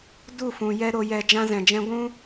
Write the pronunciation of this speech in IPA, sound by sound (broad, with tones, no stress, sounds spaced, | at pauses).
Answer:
d u˦˨ f ũ˨ j ɛ˦ ɾ o˧ j ɛ˧ d͡ʒ ã˦ z ɛ̃˨ d͡ʒ ɛ̃˦ ɡʷ ũ˦